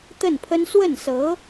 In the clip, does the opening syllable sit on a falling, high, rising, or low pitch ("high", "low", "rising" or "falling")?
falling